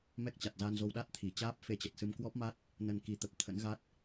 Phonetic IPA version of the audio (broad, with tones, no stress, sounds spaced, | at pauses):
m ɛ˦˥ k̚ t͡ɕ a˨˩ t̚ z a˧ n z o˧ w ɗ a˦˥ t̚ t̪ʰ i˧˩ t͡ɕ aː˦˥ p̚ f e˧ t͡ɕ ə˨˩ t̚ s ɨ˧ m k w ɔ˦˥ p̚ m a˦˥ t̚ | n ə˧ n k i˨˦ t̪ ə˨˩ p̚ t̪ʰ ə̰˧˥ n ɣ a˦˥ t̚